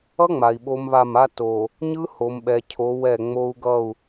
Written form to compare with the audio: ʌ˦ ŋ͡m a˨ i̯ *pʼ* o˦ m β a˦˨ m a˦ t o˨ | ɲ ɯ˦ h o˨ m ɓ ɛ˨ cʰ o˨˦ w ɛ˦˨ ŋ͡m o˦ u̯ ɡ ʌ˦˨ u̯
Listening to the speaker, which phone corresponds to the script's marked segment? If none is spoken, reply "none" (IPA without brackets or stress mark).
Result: ɓ